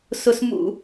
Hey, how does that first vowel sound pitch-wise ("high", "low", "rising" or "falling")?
low